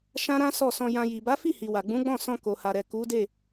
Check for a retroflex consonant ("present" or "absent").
absent